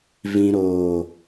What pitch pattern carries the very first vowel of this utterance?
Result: low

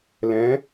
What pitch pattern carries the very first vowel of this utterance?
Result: rising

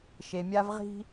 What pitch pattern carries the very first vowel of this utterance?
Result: low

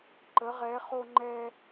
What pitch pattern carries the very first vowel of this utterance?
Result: rising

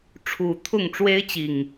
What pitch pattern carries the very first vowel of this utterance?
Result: low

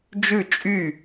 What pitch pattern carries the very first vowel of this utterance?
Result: falling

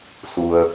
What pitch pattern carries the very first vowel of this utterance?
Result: low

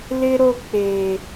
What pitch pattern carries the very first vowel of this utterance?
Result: high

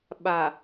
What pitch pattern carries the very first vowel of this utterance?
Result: low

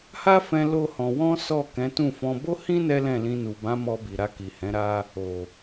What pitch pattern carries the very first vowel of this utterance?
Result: high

